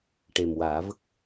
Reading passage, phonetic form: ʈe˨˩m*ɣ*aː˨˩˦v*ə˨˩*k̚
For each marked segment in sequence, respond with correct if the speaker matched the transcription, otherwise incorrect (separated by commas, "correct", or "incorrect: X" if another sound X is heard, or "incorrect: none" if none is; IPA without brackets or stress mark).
incorrect: w, incorrect: ə˦˥